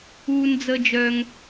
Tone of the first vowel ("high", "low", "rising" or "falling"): high